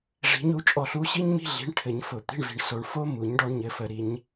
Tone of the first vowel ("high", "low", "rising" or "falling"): rising